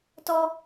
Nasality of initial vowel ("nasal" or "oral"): oral